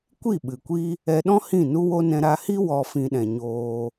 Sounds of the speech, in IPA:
kʷ i˦˨ ɓ ɨ˨ kʷ i˦ | ɛ˧ ɗ ɔ̃˦ h ĩ˦˨ n u˦ w o˦ n ɛ̃˧ ɾ a˧ h i˦ w ɔ˧ f ĩ˧ ɗ ɛ̃˨ ɲ oː˧

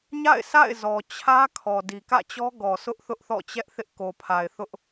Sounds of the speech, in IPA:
ɲ a̰˦˨ ɪ̯ s a̰˦˨ ɪ̯ z ɔ˨ t͡ɕʰ ä˦ kʰ ɔ˨ d i˨ k ä̰˦˨ t͡ɕ ɔ˦ ɡ ɔ˨ s ʊ˦ ʔ θ ʊ˦ ʔ θ ɔ̰˦˨ t͡ɕ ɛ˦ ʔ θ ɪ˦ ʔ k o˨ pʰ a˨ ɪ̯ θ ʊ˦ ʔ

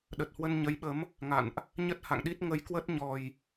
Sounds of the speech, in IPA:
ɗ ə˨˩ t̚ h w ə˧ n ɲ ə˨˦ j ɓ ə˨˦ m | ŋ a̰˧˨ n ʔ | ɲ ə˦˥ t̚ h a̰˧˨ ŋ ɗ i˦˥ t̚ ŋ ə˨˦ j k w ə˦˥ t̚ ɲ ɔ˨˩ j

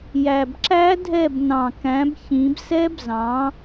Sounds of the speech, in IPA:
j æ˨˩ b ǁ æ˦˥ dʱ ɛ˦˨ b n ɑ̃˨˩ k æ̃˨˦ b ç ĩ˨˦ b s ɛ˦˥ b z ɑ̃˨˦

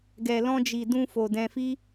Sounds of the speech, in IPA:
ɡ ɛ˨ l ɔ̃˧ d͡ʒ i˨ d ũ˧ f o˨ d ɛ̃˧ f i˦

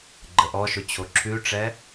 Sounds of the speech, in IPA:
ɡ͡ǃ ə ʔ ɔ ʃ ʊ t͡ɕʰ o ǁʰ ʉ ʈ͡ʂ ɛ

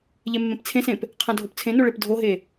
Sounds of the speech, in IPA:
ʎ e mː ẽ p t͡sʰ ẽ s ẽ p | qʰ ã dʱ o p t͡sʰ ẽ n o ɭ e p dʱ o ɦ e

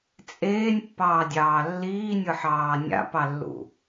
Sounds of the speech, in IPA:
t͡sʼ eː nʲ pː ɑː dʲ ɑː lː iː nʲ ɯ ħ ɑː nʲ a̰ p ɑ lː ṵ

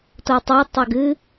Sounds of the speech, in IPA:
t o tˤ a tˤ ɐ ɡ ɨ

